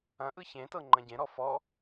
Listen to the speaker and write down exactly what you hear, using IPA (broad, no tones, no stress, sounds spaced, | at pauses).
ɐ̃ ʔ ɯ ç ẽ t ɤ ŋ͡ǃ ɐ̃ ɟ ẽ ɾ ɔ f ɔ